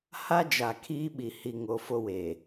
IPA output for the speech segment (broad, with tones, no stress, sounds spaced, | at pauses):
h a˦ d͡ʒ a˨ kʰ iː˦ ɓ i˨ h i˨ ŋ o˨ f o˦ w e˨